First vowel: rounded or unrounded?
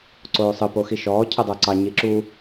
rounded